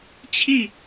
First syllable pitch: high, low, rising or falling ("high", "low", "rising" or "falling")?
falling